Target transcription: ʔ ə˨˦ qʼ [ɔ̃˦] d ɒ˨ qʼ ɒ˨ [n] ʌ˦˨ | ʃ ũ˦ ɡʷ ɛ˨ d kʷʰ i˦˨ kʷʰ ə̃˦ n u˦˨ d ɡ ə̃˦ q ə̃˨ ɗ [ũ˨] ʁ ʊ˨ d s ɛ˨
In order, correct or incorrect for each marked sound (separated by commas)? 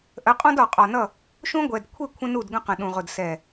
correct, correct, correct